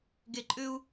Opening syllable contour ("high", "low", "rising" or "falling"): low